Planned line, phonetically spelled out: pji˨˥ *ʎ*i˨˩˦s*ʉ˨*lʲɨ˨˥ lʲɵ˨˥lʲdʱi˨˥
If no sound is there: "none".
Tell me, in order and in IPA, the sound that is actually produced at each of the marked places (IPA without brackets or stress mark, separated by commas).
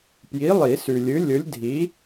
lˠ, ʉ˨